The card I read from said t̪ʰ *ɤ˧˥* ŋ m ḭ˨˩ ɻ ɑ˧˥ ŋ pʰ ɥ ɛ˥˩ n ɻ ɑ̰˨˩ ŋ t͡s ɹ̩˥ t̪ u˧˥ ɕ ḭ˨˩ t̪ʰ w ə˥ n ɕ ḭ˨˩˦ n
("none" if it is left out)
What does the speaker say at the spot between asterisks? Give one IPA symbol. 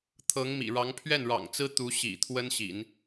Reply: ɤ˧˥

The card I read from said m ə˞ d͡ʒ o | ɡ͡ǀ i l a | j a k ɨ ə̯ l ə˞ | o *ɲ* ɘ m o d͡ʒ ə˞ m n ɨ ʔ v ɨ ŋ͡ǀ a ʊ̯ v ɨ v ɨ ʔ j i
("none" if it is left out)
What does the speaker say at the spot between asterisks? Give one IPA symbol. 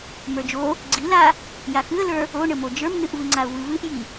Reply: ɳ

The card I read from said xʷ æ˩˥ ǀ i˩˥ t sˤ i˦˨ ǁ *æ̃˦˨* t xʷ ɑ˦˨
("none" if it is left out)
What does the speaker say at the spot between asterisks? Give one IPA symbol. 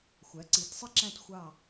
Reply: æ̃˦˨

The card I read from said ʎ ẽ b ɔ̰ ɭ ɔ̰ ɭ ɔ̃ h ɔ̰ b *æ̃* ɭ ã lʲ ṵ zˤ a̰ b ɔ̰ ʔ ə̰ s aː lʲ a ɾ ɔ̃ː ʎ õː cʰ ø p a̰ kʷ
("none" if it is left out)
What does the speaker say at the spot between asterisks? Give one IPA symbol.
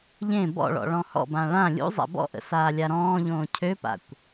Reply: ã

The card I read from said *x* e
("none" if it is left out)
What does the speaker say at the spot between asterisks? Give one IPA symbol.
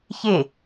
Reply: ç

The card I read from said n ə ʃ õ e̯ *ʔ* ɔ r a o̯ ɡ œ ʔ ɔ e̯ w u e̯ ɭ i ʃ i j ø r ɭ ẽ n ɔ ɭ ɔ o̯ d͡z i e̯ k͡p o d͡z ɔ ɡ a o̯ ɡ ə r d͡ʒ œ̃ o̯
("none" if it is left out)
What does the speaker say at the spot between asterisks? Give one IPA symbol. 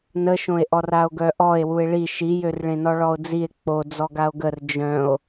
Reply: ʔ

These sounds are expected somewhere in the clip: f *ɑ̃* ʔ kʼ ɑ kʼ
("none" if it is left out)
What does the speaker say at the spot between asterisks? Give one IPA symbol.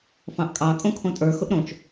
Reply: ɑ̃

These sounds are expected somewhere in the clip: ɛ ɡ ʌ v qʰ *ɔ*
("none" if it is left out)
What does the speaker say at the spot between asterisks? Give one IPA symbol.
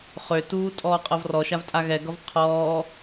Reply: ɔː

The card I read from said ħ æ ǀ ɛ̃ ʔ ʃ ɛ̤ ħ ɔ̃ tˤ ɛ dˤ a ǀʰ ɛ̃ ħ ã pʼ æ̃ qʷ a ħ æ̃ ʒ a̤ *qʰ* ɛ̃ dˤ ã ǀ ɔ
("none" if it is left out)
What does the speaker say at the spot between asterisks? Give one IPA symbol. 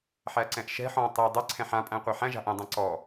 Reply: ʔ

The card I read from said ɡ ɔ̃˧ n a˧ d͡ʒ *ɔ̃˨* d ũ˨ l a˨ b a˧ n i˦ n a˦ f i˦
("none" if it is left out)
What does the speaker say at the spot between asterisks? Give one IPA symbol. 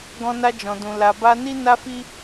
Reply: ɔ̃˨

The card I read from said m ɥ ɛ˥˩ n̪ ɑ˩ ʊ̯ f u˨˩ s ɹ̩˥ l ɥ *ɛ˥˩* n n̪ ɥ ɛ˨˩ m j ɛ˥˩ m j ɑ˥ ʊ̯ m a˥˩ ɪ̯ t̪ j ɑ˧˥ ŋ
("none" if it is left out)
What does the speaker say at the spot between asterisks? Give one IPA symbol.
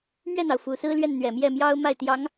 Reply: ɛ˥˩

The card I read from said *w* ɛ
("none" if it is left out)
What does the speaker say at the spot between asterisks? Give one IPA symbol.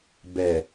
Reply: b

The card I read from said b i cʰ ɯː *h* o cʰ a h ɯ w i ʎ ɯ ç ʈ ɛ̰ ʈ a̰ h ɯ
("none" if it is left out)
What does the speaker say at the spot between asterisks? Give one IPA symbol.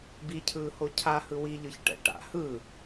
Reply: h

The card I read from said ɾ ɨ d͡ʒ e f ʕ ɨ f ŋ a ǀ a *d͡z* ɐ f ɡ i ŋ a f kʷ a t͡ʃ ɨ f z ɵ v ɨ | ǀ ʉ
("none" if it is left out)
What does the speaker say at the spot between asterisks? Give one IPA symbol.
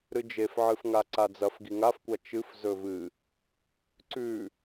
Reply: d͡z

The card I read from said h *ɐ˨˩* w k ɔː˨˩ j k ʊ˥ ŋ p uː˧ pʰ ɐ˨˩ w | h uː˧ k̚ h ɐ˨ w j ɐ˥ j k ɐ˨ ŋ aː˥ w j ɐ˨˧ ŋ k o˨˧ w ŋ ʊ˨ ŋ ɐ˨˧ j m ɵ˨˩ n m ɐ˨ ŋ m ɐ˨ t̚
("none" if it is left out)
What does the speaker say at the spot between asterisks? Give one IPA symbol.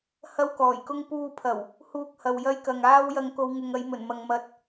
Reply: ɐ˥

